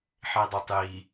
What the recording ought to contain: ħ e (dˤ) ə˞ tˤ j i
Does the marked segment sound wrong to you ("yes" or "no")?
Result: no